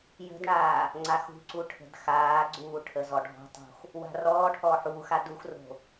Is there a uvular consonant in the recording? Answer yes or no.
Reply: no